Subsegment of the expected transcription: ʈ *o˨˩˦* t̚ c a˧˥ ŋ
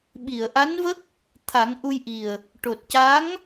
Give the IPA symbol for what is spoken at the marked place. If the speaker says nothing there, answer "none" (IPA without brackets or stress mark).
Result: o˨˩